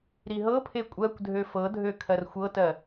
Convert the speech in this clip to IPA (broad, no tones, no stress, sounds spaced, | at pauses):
ɾ i ɦ ɤ pʰ e kʷʼ ɜ kʷ dʱ ø f ɤ dʱ ø kʰ ɜ r xʷ ɤ t ɜ